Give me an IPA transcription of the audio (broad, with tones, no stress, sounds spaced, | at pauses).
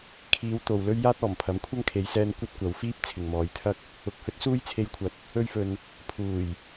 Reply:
kʰ iː˨˧ w t̪ o˨ w l ɵ˥ ɥ j aː˥ t̚ ɔː˨˩ m pʰ ɐ˨˥ m kʷʰ ɐ˥ ŋ kʰ e˨˧ j s ɛː˧ n kʷ ɐ˥ t̚ kʷ ɐ˨˧ w f iː˥ p̚ t͡sʰ ɪ˨ ŋ m ɔː˨˧ j t̪ʰ ɐ˥ k̚ | ʊ˨˥ k̚ h ɵ˨˥ t̚ s uː˥ j t͡sʰ e˧ j kʷʰ ɐ˨˥ t̚ | ɵ˧ ɥ f ɵ˨ n | pʰ uː˨˩ j